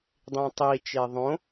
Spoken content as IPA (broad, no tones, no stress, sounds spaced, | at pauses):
dˤ ĩ tˤ i t͡ʃ e ðˤ õ